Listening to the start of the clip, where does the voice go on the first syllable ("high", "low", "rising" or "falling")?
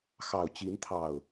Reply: low